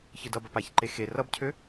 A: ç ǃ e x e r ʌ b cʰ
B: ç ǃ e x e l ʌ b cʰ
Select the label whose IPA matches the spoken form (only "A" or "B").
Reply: A